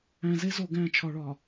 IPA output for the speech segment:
æ̃˨ze˦ zo˨ɡæ̃˦˨t͡ʃʰɒ˨ɭɒ˨

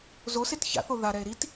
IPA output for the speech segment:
zoset ça̰θo ðaɾɛe̯ ɾit

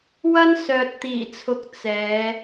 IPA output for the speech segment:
wɐ˥nsœː˨t̚t̪iː˨˩t͡sʰʊ˨k̚ t͡sɛː˨˧

